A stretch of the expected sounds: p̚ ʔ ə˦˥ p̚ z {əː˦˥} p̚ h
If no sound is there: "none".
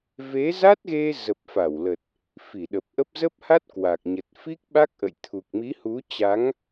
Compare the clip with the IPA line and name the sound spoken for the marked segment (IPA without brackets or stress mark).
ə˦˥